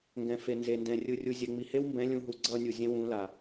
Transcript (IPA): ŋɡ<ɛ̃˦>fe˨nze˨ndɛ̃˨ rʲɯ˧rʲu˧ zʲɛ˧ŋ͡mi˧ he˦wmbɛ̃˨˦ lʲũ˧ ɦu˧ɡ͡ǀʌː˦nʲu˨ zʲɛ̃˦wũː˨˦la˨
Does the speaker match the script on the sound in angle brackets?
no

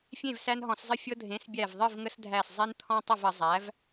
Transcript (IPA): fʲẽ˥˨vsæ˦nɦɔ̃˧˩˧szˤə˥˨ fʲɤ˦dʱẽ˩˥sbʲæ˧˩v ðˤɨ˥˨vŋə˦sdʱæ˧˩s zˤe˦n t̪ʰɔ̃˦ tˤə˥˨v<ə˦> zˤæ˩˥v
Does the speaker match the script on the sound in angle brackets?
no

